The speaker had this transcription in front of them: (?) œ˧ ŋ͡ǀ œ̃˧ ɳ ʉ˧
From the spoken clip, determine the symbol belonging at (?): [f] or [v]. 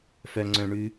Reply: f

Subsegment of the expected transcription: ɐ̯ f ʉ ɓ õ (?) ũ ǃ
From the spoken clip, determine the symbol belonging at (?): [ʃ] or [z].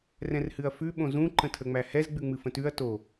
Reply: z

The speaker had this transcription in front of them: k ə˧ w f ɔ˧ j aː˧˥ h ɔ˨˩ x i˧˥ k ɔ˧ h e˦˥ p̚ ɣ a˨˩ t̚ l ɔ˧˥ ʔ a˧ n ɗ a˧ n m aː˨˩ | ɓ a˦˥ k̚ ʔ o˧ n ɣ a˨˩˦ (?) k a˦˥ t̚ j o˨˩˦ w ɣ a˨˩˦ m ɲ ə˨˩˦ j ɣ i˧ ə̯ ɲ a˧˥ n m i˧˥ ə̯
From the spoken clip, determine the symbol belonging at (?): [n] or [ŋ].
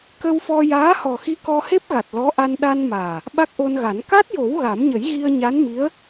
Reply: n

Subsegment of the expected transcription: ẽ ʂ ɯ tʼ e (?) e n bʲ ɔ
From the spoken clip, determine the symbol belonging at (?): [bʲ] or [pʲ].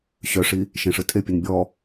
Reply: pʲ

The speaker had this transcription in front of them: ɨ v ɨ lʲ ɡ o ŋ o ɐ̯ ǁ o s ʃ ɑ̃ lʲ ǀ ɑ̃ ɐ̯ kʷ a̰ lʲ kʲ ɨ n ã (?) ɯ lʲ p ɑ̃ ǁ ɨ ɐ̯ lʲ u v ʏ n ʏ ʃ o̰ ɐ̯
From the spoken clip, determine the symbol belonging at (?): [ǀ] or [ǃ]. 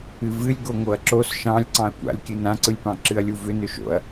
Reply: ǀ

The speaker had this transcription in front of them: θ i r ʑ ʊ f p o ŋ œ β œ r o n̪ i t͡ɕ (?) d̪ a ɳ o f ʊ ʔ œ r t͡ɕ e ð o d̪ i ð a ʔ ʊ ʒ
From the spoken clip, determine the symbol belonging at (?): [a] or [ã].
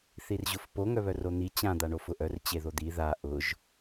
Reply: ã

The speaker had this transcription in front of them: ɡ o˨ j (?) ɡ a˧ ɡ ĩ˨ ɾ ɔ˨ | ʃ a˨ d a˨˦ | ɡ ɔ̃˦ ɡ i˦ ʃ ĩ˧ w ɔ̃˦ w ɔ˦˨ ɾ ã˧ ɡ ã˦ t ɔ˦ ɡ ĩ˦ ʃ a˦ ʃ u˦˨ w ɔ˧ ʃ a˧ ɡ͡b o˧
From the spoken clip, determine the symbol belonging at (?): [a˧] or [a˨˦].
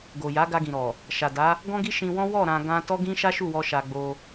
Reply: a˨˦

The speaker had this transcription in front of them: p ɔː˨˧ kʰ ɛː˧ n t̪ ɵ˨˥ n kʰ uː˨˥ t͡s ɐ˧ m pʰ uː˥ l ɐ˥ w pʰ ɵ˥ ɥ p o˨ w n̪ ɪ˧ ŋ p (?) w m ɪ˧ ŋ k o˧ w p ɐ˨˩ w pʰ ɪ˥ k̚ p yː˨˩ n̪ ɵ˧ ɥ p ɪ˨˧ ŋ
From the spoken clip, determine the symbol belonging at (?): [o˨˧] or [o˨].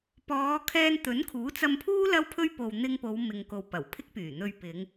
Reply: o˨˧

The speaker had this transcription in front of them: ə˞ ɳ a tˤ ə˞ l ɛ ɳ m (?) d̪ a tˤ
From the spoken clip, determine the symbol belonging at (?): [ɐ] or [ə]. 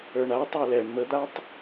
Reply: ə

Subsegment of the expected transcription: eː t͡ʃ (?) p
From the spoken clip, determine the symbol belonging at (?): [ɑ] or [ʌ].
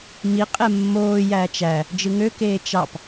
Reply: ɑ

